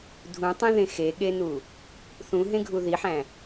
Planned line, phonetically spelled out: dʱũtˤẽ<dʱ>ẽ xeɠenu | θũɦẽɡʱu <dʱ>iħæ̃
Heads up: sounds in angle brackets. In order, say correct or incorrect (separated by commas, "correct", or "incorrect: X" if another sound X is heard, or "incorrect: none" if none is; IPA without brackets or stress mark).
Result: incorrect: ð, incorrect: ð